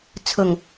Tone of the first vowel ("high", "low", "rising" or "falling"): low